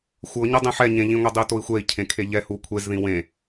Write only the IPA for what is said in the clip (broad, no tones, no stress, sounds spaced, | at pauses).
xʷ ɤ ɲ ɤ dˤ ẽ ħ ɛ ɲ ẽ ʎ ĩ ŋʷ e dˤ i u̯ t o i̯ xʷ ɛ i̯ cʰ ẽ kʰ e ʎ ɛ h u kʷʰ e z ð ĩ w ẽ